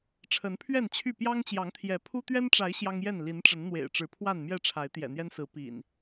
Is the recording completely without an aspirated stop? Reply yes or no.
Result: no